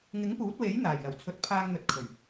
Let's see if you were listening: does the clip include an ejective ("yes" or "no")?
no